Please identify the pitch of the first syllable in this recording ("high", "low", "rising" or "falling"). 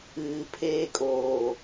low